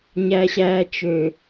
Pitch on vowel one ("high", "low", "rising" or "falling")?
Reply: low